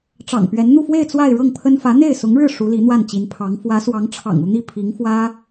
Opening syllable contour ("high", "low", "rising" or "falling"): low